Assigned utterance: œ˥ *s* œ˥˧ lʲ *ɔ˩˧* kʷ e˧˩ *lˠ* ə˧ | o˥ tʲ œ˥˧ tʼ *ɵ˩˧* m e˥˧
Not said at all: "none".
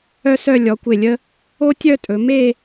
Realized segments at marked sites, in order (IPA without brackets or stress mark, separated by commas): s, ɔ˩˧, lʲ, ɵ˩˧